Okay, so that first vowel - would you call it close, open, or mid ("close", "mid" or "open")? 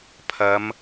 open